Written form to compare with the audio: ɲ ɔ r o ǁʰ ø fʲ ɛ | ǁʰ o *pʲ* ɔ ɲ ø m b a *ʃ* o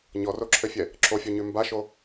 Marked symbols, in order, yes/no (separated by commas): no, yes